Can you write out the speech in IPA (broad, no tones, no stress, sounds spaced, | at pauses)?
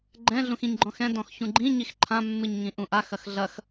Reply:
ɡ͡ǃ ɛ̃ ɮ ũ x ĩ ɲ ɡ͡ǃ ɔ̃ x ɛ̃ d ɔ̃ x ç ũ ɡ͡ǃ ĩ ɲ i x ǃʰ ã mː ɨ ɲ ŋ ĩ ʔ ũ ʔ a x ɐ x ɮ ɐ x